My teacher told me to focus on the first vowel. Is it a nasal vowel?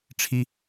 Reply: no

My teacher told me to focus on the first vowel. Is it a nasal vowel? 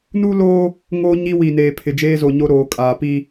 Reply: no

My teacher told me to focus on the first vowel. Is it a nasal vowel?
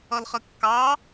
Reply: no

